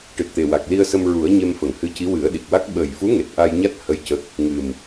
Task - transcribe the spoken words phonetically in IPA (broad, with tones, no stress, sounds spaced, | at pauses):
ʈ ɨ˨˩ t̚ t̪ e˨˩ w a˨˩ k̚ l i˧ ə̯ s ə˧ m ɹ u˨˩˦ ə̯ ɲ e˧ m f ə˨˩˨ ŋ h ɨ˧˥ c i˧˥ w ɨ˨˩˦ ə̯ ɗ i˨˩ k̚ w a˦˥ k̚ ɓ əː˨˩ j f u˧˥ ŋ e˨˩ t̚ ʔ a˧ j ɲ a˦˥ t̚ h ə˧˥ j c ə˦˥ k̚ | ŋ ɨ˨˩ m